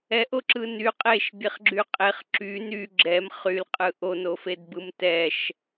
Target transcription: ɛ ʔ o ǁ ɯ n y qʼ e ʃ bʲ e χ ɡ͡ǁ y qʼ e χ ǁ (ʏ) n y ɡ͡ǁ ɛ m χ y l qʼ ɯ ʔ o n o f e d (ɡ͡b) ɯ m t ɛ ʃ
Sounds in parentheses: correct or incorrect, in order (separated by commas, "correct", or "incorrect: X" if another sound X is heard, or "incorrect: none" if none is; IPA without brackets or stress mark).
incorrect: y, incorrect: b